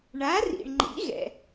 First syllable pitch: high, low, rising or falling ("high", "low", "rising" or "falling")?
rising